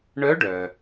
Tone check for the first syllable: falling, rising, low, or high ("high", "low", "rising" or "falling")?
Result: rising